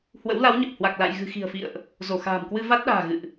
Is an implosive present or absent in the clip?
present